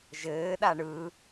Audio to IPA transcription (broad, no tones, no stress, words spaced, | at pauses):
ʒɘːɗa ɳɯ